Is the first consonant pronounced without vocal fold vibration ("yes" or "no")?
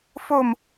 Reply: yes